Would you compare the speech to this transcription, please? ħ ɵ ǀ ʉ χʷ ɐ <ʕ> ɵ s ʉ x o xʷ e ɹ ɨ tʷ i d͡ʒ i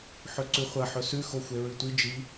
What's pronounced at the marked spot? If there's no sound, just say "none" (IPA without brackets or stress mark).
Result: ħ